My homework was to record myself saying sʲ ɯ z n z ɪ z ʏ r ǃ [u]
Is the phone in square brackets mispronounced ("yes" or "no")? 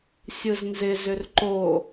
yes